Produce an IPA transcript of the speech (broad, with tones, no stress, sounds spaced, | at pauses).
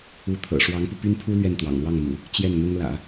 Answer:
u˧˥ t̪ʰ ɤ̰˨˩ ʂ w ɑ˧˥ ŋ p u˧ p y˥ n pʰ u˥ l ɥ ɛ˥˩ n t̪ w ɑ̰˨˩ ŋ l w ɑ˥˩ ŋ m ṵ˨˩˦ | t͡ɕ j ɛ˥˩ n n̪ ʊ˥ ŋ l ä̰˨˩˦